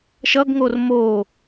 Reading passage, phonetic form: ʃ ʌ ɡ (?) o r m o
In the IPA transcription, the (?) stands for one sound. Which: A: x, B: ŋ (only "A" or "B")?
B